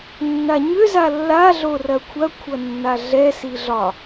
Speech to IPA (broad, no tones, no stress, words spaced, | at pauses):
nːaɲʏ zalːa ɮorɐkʷʰɐ kʷʰʌnːaɮɛ siɮɒ